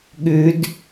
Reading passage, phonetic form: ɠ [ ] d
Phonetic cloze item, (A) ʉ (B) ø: A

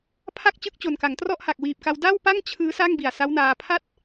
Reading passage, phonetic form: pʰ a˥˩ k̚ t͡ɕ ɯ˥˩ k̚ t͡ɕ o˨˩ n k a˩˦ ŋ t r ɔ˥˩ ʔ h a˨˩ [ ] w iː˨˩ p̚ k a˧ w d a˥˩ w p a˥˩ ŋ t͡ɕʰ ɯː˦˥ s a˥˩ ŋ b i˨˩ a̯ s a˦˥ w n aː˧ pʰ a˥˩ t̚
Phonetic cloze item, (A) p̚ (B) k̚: B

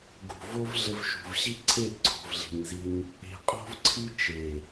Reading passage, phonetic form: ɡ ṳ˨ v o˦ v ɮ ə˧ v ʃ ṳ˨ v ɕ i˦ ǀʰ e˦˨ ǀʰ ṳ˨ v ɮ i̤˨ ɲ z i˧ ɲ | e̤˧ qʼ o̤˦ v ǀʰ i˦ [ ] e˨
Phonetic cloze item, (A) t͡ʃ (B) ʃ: A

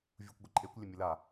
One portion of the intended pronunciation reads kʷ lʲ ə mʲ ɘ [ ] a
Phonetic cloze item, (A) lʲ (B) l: B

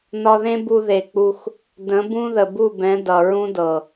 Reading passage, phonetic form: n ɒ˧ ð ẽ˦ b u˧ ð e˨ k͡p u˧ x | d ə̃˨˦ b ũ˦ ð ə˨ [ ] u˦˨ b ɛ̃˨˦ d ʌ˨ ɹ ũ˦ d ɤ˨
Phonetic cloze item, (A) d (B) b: B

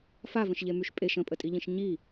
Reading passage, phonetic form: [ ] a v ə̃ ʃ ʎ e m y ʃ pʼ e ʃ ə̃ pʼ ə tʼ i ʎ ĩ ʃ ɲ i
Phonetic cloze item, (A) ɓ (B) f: B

